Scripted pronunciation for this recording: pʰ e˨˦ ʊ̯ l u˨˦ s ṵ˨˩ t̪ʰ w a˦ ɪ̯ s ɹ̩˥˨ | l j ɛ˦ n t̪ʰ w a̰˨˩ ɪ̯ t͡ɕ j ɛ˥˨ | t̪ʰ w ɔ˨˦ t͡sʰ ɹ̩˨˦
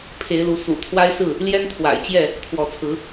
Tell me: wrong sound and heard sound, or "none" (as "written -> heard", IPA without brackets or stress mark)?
ʊ̯ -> ɪ̯